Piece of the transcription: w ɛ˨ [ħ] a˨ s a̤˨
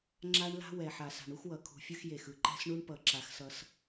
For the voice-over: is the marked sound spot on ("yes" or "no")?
yes